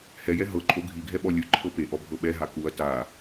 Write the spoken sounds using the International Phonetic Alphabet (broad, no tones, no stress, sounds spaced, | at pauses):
h ɛ j ɛ ɦ ɤ ǃʼ o ɡʱ i ɡʱ ɛ ɓ ɔ lʲ ɯ ǃʰ ɤ p e ʔ ɔ bʱ ɤ ɓ ɛ ɦ a k u ɐ̯ t a